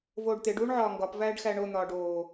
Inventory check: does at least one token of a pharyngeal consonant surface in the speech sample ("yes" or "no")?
yes